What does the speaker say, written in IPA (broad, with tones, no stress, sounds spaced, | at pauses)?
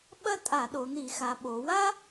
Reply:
ɓ ɐ˥ tʼ a˧˩˧ ɗ o˩˧ n̪ i˧˩˧ x a˩˧ ɓ o˩˧ w a˥